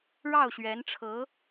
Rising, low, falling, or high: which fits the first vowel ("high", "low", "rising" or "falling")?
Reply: falling